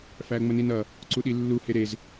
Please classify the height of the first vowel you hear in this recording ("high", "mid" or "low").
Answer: low